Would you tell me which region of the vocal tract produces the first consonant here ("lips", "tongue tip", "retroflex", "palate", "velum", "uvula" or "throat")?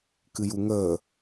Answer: velum